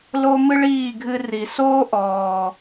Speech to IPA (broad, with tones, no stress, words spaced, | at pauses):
lo˦mɨ˦ɭiː˦˨ɡʱɨ˧ ri˨ soː˦ ʔɔː˨